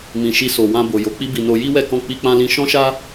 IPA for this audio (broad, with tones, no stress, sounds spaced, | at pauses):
m ĩ˨ ʃ i˧ s o˨ w ã˧ b o˨ j o˨˦ k͡p i˦ b i˧ n o˧ j i˦ w ɛ˦˨ k ɔ̃˧ k͡p i˧ k͡p ã˧ l ĩ˧ ʃ ɔ̃˦ ʃ a˦